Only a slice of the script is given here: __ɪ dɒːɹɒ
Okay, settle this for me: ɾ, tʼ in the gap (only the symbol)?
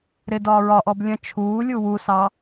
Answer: ɾ